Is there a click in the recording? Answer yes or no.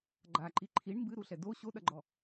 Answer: yes